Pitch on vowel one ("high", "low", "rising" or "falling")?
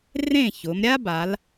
falling